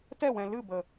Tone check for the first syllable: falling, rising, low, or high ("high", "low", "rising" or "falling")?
falling